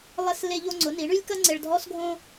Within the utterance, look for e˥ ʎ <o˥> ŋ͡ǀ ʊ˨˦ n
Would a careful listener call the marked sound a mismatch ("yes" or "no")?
no